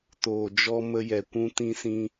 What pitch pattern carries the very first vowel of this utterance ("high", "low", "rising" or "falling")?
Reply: low